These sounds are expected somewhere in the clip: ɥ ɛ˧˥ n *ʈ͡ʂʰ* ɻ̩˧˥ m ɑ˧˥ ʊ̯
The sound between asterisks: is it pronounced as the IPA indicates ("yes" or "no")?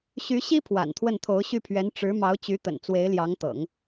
no